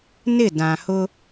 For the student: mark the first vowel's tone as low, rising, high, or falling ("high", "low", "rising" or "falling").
falling